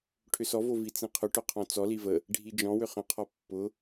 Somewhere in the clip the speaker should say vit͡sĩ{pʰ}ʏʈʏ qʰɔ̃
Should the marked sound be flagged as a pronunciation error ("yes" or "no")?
yes